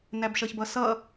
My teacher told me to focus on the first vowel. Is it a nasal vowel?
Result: no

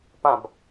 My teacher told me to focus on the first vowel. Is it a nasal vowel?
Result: yes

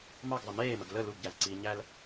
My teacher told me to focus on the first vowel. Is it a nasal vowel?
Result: no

